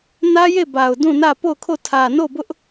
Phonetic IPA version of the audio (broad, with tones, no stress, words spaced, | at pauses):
nä˦je˦˨ba˨ʊ̯ dũ˦˨nä˦˨ po˦˨ʊ̯kʰo˦˨ tʰä˨no˦˨bʊ˦ʔ